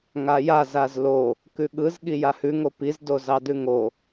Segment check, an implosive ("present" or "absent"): present